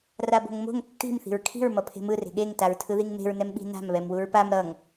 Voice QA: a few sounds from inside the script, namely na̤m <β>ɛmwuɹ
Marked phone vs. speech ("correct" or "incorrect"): correct